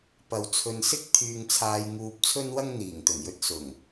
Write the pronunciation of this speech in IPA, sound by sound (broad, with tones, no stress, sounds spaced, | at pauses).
p ɐ˨ w t͡sʰ ɵ˨ n s ɪ˥ k̚ t̪ʰ yː˧ ŋ t͡sʰ aː˧ j ŋ uː˧ p̚ t͡sʰ ɵ˥ n w ɐ˥ ŋ n̪ iː˨˩ ŋ t̪ ɵ˨˩ n j ɵ˧ t̚ s ʊ˨˩ ŋ